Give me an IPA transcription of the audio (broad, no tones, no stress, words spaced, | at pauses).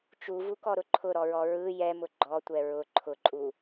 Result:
t͡ʃuvukɔɾʊ ǃʰʊɾɔɹɔ ɹɯ jɛmʊ ɡ͡ǃɔtʷɛ ɹʊ ǃʰʊǃʼu